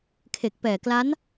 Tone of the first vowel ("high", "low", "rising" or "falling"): low